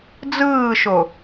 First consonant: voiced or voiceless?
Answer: voiced